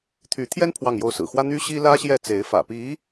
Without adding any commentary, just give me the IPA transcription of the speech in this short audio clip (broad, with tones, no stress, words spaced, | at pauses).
t̪ʰy˧˥t̪ʰjɛ˥n pʰwɑ˥˧ŋjo˥˩ʊ̯sɹ̩˨˩ xwä˥n̪y˥ɕi˥ lä˥ɕjɛ˥˩t͡se˧˥ɪ̯fä̰˨˩ pi˧˥